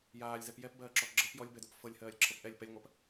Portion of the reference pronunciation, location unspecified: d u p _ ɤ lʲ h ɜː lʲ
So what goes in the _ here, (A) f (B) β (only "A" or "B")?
A